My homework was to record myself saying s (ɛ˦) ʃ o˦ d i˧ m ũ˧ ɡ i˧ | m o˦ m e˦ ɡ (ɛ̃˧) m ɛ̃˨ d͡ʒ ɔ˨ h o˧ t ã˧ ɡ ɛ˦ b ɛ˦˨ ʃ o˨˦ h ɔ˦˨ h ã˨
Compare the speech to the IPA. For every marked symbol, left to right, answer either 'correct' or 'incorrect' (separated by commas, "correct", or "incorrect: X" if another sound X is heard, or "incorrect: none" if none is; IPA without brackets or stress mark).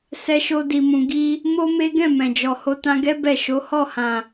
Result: correct, incorrect: ɛ̃˦˨